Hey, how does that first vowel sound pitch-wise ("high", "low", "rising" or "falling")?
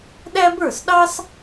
high